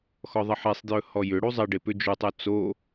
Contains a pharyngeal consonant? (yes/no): yes